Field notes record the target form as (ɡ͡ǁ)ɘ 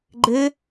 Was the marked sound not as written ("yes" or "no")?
yes